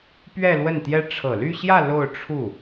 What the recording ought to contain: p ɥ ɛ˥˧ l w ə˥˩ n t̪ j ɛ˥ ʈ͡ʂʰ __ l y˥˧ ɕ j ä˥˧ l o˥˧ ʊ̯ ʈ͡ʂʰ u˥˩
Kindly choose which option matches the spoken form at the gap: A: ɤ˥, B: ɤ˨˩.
B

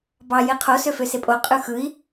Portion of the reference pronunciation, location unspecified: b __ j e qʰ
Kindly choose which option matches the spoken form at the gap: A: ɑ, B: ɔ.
A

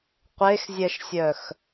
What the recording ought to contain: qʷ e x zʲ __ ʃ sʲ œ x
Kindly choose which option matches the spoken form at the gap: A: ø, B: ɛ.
B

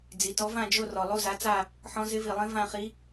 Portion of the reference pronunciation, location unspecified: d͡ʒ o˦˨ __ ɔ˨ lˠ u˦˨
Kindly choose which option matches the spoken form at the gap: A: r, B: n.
A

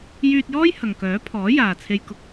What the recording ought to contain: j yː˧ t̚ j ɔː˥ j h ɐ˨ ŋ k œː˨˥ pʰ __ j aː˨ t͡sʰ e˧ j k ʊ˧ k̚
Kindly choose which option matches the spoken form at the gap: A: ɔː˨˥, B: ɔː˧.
A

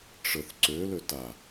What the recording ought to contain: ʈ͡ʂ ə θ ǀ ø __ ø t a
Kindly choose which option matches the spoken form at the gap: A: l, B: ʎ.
A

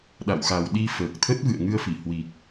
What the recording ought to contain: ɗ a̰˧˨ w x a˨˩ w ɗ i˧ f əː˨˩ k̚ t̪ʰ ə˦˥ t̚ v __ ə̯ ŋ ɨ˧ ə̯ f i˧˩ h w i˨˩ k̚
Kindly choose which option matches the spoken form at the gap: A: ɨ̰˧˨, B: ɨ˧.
A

